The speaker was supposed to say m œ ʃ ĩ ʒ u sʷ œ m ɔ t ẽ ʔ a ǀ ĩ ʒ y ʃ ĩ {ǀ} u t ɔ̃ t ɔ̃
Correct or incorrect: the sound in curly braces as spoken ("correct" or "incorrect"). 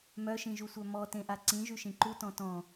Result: incorrect